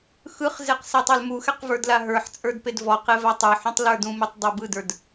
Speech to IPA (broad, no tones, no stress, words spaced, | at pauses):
xɯχzeq sɛtˤɑlmuxɛq və˞dlaɦə˞ħt͡sʼə˞d pedvɔqe vatˤə˞ħũtˤ lə˞dũmetˤ dˤɛbɯdə˞d